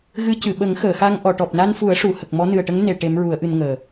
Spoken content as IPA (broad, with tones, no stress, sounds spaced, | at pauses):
ɣ ɨ˧˥ c ɨ˨˩˨ ɓ ə˨˩˦ ŋ x əː˨˩˨ x a˧ ŋ ʔ ɔ˨˩˨ ʈ ɔ˨˩ p̚ n a˧ n f u˨˩˦ ə̯ ʂ u˨˩˦ h ə˨˩ k̚ m ɔ˧˥ n ɨ˨˩ ə̯ ʈ ə˧˥ ŋ n e˨˩˨ ʈ e˧˥ m ɹ u˨˩˦ ə̯ ʔ ɨ˧ n ŋ əː˨˩